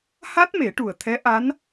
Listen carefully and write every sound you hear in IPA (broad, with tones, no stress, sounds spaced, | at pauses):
h a˦˥ t̚ m e˨˩˦ ʈ u˨˩ ə̯ t̪ʰ ɛ˧˥ ʔ a˧˥ n